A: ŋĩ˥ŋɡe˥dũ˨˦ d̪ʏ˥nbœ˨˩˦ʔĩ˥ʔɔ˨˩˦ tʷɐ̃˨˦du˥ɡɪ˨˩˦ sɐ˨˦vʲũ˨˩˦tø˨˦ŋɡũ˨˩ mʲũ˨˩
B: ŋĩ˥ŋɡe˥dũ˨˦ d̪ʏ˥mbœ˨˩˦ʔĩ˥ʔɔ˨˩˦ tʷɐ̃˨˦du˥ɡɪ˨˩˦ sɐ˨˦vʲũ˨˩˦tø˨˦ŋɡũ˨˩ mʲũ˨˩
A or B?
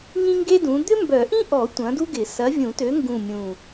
B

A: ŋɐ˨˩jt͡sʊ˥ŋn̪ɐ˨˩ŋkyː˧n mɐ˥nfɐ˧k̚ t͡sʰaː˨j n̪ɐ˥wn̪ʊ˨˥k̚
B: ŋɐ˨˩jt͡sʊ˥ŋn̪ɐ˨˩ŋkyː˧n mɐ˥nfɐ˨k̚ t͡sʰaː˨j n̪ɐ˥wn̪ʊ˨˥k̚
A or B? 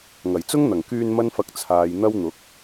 A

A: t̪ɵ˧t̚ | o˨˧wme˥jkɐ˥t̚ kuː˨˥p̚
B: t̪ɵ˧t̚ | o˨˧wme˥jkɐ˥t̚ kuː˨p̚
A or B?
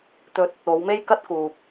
B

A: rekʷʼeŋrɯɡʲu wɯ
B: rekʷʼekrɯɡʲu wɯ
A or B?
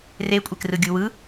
B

